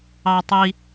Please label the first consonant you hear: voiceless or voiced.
voiceless